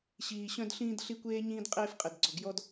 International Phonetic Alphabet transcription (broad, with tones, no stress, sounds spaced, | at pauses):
ɕ iː˨ ɕ œ̃˦ d ɬ ĩː˦ d ɬ i˦ kʷ eː˦ ɲ ĩː˦ d qʼ eː˦ f qʼ e˨ d ɡ͡ǀ ɔ˨ ɡ j ɔ˦ d